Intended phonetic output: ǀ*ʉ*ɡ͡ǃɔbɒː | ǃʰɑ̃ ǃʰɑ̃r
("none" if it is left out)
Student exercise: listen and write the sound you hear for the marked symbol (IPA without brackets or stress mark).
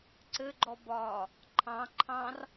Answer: ɘ